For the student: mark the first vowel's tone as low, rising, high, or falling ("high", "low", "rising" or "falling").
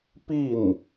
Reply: falling